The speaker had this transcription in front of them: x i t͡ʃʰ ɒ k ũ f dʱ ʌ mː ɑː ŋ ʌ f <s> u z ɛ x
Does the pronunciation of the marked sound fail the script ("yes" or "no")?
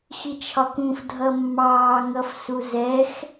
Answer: no